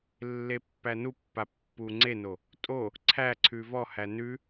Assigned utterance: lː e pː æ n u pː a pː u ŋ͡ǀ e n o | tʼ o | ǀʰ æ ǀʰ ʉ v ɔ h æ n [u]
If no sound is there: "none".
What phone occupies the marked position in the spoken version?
ʉ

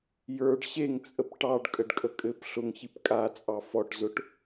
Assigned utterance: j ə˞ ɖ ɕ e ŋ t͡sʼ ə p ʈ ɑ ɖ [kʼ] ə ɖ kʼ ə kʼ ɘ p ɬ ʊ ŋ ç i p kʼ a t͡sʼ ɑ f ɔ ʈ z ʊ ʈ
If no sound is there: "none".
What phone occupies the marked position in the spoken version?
kʼ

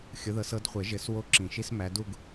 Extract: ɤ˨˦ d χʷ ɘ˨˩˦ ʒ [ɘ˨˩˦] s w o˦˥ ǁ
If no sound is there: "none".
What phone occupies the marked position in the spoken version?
ɘ˨˩˦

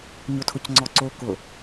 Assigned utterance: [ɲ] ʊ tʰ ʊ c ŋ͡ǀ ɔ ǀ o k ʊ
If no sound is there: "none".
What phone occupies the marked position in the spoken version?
ɲ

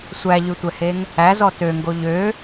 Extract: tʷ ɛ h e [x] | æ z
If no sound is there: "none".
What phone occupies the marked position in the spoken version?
ŋ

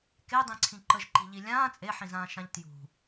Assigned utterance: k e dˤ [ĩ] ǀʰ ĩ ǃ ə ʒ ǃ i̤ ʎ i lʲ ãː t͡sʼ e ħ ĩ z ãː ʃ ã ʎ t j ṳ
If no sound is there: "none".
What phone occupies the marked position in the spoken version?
ĩ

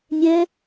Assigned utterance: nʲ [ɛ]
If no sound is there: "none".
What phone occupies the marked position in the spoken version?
ɛ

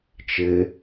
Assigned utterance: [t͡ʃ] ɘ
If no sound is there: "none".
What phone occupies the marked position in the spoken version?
t͡ʃ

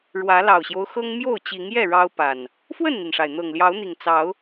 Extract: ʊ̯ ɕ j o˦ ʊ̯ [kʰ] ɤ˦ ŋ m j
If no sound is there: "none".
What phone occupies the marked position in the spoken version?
x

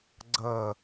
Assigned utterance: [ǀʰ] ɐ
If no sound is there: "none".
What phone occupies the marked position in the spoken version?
ɡ͡ǀ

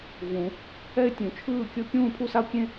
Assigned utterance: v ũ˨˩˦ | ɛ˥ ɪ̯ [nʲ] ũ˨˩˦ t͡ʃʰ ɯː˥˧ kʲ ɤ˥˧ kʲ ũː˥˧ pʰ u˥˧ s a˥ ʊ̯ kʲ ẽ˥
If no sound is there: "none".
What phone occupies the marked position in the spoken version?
tʲ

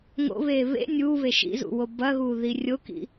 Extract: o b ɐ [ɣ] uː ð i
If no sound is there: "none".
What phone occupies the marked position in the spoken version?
ɣ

